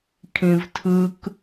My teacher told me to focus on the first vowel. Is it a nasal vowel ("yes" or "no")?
yes